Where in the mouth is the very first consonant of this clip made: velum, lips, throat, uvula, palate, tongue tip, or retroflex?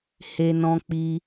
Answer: throat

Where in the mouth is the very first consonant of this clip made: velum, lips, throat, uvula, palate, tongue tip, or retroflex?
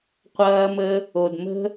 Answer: uvula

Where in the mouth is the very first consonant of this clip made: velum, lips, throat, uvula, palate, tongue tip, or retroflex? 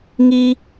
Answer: velum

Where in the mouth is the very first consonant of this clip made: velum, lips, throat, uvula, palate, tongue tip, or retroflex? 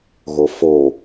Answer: velum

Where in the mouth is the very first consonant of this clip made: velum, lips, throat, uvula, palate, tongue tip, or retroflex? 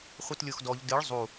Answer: uvula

